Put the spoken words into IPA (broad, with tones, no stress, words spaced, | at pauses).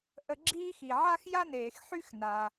ʔə˧ɡ͡ǁiː˥ xi˩ ʕa˥xja˥neː˩x ħy˥xna˩